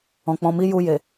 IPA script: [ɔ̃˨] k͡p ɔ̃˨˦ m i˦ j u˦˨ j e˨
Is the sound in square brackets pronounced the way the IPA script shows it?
yes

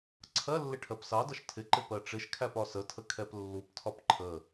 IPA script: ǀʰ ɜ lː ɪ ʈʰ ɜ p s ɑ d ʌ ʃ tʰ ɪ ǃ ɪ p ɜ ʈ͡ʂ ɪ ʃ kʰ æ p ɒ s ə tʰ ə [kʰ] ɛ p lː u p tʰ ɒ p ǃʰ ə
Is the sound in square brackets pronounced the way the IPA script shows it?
yes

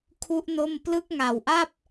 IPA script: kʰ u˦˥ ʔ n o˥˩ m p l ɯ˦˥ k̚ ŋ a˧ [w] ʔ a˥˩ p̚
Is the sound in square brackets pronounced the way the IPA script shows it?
yes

